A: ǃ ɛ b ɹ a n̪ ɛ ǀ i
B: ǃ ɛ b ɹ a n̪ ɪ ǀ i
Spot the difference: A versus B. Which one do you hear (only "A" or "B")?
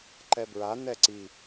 A